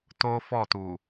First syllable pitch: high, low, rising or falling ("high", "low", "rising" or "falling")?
high